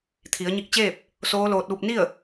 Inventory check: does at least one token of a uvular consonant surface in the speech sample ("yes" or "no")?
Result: no